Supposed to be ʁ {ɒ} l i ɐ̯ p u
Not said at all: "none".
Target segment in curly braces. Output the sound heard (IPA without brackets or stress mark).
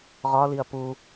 ɒ